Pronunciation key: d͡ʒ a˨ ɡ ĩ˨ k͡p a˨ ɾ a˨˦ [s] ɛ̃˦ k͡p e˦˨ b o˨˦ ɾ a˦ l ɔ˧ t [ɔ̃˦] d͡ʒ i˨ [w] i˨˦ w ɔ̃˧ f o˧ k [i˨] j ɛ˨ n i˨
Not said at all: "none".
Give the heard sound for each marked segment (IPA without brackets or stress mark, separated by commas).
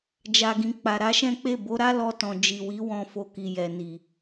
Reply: ʃ, ɔ̃˨, w, i˨